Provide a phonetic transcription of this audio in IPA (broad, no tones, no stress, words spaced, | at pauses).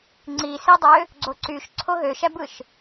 ŋ͡ǀisidˤø | ɡ͡ǀoǀyʃ ǀʰoɦøʃæbɯʃ